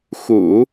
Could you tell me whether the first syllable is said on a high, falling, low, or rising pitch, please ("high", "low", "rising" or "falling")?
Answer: low